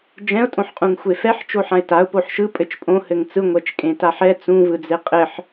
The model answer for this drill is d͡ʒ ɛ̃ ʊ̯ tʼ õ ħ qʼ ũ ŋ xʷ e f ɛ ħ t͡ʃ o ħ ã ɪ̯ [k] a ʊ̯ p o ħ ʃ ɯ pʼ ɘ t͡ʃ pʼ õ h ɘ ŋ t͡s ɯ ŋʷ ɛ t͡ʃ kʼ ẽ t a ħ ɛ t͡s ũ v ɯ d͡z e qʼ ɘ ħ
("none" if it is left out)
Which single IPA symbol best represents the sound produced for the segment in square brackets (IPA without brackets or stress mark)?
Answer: t